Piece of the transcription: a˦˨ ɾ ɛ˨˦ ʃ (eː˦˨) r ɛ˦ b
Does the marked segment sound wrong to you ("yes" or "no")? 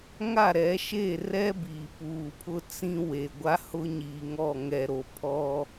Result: no